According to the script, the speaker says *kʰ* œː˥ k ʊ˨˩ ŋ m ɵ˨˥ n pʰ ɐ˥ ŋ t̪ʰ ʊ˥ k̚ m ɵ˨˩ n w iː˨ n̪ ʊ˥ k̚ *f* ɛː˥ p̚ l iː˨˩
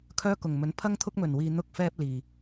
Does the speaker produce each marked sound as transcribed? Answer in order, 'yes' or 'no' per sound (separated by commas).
yes, yes